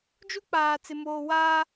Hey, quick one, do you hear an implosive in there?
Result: no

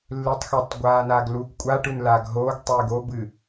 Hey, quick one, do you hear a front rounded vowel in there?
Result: no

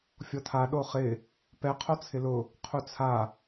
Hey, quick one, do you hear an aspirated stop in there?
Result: yes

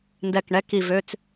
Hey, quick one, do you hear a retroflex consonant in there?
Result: yes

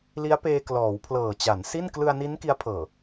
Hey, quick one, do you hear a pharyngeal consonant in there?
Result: no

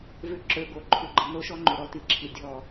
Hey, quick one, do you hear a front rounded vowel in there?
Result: yes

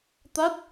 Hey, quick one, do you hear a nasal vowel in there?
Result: no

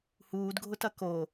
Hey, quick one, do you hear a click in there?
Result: no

